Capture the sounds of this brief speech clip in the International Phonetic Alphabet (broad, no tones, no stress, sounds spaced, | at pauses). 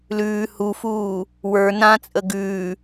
l ʉː h u f uː | w ə˞ n ã t͡sʼ ə ɡ ʉː